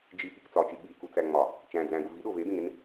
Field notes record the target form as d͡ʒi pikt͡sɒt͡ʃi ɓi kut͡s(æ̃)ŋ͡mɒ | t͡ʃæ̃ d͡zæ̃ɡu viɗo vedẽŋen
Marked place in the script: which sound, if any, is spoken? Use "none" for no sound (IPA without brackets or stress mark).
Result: æ